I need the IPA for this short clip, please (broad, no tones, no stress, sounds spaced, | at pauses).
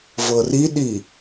v ɤ r i ɗ i